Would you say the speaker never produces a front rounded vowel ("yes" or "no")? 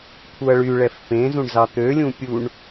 no